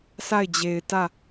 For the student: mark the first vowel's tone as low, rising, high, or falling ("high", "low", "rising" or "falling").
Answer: falling